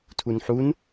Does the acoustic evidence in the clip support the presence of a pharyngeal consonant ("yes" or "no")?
yes